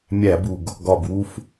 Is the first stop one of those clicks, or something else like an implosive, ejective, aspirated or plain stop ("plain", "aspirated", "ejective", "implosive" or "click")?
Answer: plain